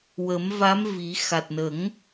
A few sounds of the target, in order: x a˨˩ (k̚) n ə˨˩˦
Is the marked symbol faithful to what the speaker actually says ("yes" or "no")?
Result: no